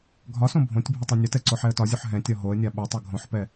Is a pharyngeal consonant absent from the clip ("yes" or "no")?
no